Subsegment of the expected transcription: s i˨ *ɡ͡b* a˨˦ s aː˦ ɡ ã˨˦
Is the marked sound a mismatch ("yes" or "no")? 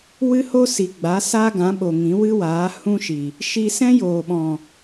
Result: no